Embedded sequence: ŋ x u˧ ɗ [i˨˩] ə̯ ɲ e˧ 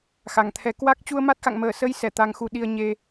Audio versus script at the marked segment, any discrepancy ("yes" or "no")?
yes